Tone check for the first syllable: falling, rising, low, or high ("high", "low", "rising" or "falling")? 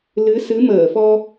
rising